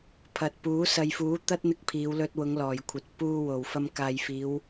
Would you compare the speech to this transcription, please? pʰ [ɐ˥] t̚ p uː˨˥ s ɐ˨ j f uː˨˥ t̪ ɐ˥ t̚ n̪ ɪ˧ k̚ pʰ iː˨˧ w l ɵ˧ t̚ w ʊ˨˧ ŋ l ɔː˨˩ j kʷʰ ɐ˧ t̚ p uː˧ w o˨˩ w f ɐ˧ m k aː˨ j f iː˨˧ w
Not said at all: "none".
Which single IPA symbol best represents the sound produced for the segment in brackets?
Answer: ɐ˨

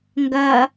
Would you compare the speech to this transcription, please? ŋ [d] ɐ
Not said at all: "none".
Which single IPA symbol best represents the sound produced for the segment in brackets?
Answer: ɡ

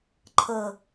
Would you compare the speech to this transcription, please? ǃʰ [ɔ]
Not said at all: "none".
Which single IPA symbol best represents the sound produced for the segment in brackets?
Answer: ɤ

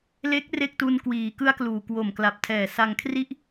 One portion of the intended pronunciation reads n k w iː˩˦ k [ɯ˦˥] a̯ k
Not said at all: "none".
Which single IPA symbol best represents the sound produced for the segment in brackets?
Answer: ɯ˦˥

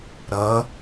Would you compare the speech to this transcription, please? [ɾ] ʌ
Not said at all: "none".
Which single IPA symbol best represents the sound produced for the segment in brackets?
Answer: ɾ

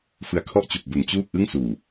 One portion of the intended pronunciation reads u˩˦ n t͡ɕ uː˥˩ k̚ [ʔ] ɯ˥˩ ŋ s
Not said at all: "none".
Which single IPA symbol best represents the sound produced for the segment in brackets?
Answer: ʔ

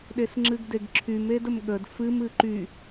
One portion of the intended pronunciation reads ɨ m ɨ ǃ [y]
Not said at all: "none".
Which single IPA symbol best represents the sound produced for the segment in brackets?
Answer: y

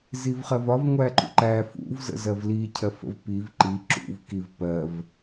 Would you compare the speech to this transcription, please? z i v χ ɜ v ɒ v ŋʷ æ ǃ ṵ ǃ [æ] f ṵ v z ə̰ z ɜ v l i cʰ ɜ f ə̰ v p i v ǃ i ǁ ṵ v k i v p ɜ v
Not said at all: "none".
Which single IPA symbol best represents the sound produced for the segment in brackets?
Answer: æ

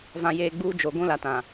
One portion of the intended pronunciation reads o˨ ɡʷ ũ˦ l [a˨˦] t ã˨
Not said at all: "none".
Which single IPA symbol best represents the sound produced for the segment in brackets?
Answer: a˨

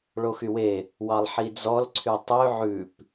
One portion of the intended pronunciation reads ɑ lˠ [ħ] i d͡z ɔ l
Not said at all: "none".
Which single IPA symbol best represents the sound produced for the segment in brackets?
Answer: ħ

